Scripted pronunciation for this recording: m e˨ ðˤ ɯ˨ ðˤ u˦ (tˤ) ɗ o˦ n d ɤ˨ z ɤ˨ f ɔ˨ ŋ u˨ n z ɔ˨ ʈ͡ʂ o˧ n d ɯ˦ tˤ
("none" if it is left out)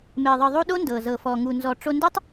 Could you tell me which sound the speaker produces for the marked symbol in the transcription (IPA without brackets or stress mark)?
none